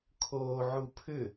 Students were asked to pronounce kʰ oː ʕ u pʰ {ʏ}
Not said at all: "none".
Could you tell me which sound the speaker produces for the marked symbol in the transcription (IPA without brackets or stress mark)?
ʏ